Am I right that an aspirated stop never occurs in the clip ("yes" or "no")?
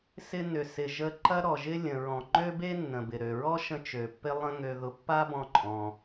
yes